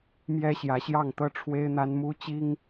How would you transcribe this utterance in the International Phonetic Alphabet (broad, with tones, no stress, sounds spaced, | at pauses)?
m j ɛ˥ ɕ j ä˧˥ ɕ j ɑ˥˩ ŋ t̪ ɤ˥ ʈ͡ʂʰ w e˥ ɪ̯ n̪ a˥ n m u˥ t͡ɕ i˥ ŋ